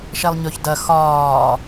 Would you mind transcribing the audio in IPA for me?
ʃ ɛ lˠ ɲ ɵ ç d ɐ x ɒː

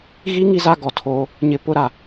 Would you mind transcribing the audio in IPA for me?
ɣ i˦ ŋ i˦ z a˦ ɡ ɔ˨ tʰ oː˦ | ɲ ɪ˦ p ʊ˦ ɾ a˨

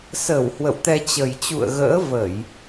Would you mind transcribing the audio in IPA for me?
s əː˧˩ w h w ə̰˧˨ w t̪ ɛ˧ t͡ɕ ə˨˩ j t͡ɕ ṵ˧˨ ə̯ ɣ ə̰ː˧˥ v ə˧˩˨ j

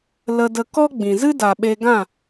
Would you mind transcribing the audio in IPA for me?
l ə˧ d ə˧ k ɔ˦ ɡ͡b ĩ˨ z ɨ˦ d a˨ ɓ e˧ ɡ ã˦˨

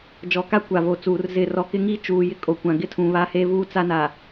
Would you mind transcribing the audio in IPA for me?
d͡ʒ ɔ˨ k a˦ kʷ a˨ v o˨ t͡s uː˨ r z ɪ˨ r ɔ˨ k ɪ˦ ŋ i˦ t͡ʃ uː˨ j ɪ˦ kʼ o˨ kʷ ã˨ ɡ ɪ˦ tʰ ũ˨ β a˦ h e˦ v uː˦ t͡s a˦ n a˨

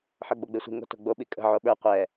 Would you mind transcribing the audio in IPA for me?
ħ ə˞ ɡ͡b o ɡ͡b e sʷ i̤ ŋ o̤ t o̤ ɡ͡b o ɓ i kʼ ə̤ ʕ o ɓ ə˞ qʷ ɛ

